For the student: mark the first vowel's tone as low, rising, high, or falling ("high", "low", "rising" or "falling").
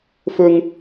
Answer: high